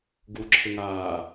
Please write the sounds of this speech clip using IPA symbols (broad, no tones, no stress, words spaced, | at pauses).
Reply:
ɡuǁʰɪŋaː